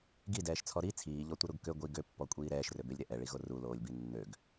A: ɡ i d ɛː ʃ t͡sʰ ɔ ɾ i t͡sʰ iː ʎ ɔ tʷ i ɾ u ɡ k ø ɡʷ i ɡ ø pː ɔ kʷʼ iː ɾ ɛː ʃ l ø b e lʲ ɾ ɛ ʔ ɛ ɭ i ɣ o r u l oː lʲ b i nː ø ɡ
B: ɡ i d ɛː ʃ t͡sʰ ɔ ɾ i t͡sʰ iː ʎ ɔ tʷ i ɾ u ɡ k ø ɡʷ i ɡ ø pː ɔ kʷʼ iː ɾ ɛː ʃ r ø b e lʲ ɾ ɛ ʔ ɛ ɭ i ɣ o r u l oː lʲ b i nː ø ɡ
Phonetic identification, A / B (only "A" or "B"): B